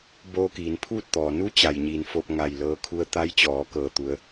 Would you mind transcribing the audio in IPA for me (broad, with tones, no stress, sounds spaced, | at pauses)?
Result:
b oː˧ k iː˩˧ n pʰ uː˥˨ t̚ t̪ ɔː˩ n u˧˥ t͡ɕ a˩ j ɲ iː˩˧ n f oː˧ p̚ ŋ a˧˩ j l ɤː˧ kʰ u˧ ə̯ t̪ a˧˥ j t͡ɕ ɔː˩˧ k ɤː˧˩ t̪ u˩˧ ə̯